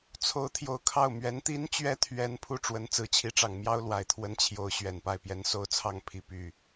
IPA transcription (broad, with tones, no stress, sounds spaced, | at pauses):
t͡sʰ o˧˥ ʊ̯ t̪ʰ j o˨˩ ʊ̯ kʰ ɑ˥˩ ʊ̯ m ɥ ɛ˧˥ n t̪ i˥ n t͡ɕ ɥ ɛ˥ t̪ʰ ɥ ɛ˧˥ n pʰ u˥˩ ʈ͡ʂ w ə˧˥ n t͡s ɹ̩˨˩ t͡ɕʰ i˧˥ ʈ͡ʂ ɑ˨˩ ŋ m j ɑ˥ ʊ̯ l w a˨˩ ɪ̯ t̪ʰ w ə˥ n t͡ɕʰ j o˧˥ ʊ̯ ɕ ɥ ɛ˨˩ n p a˥˩ ɪ̯ p j ɛ˧˥ n s o˥ ʊ̯ t͡sʰ ɑ˥˩ ŋ pʰ i˧˥ p y˥˩